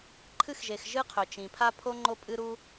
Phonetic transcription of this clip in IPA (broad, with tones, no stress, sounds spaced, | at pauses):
ǃʰ ɨ˥ x ʒ e˩ x ʒ ɨ˥ qʰ ɵ˩ t͡ʃ ĩ˩ pʰ a˥ pʰ o˥ ŋ͡ǃ o˥ pʼ ɨ˥ ɾ u˥